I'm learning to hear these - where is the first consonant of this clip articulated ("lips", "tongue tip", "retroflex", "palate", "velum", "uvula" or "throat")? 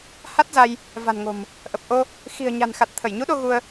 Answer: throat